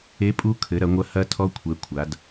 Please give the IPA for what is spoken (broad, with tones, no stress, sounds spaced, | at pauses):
e˨˦ pʼ u˨˦ kʰ ɘ˨˦ ɾ ɐ˨˦ ŋʷ ɐ˦˥ h ɐ˦˥ tʰ ɔ˦˥ kʷʰ ɛ˨˦ kʷʰ a˨˦ d